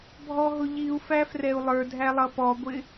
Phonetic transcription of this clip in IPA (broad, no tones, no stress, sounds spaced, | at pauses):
bʱ ɔ ɦ ʊ ʎ i u̯ f æ f r ɛ u̯ lˠ ə˞ dʱ æ lˠ ʌ p ɔ ɡʷ ɪ